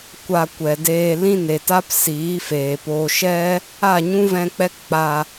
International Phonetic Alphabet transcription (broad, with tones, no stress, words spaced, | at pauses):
kʷa˧kʷɛ˨deː˧ lĩ˦ne˨ta˦p siː˨˦feː˨poː˧ ʃɛ˦ | a˦˨ɲũ˦vɛ̃˧k͡pɛ˦k k͡pa˧